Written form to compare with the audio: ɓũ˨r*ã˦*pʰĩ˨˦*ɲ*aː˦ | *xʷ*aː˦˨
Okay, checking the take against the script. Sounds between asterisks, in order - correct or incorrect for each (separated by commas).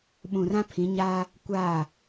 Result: correct, correct, incorrect